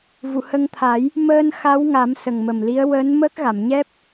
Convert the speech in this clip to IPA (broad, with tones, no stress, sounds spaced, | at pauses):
v u˨˩˨ h ə˧ ŋ t̪ʰ a˨˩˦ j | m əː˧ n x a˧˥ w ŋ a˨˩˦ m s ə˨˩ ŋ m ə˨˩ m l i˧˥ ə̯ w əː˧˥ n m əː˦˥ k̚ ɣ a˨˩˨ m ɲ ɛ˦˥ p̚